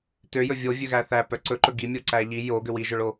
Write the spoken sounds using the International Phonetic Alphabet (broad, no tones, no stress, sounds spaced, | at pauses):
t ø j ɵ vʲ o vʲ ø ɣ æ θ æ p œ ǀ ɵ ǃ ɵ ɡ i mʲ o ǀ æ ʎ i j o ɡ ø w i ʒ œ ɭ o